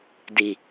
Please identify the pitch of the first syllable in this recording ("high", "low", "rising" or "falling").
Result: low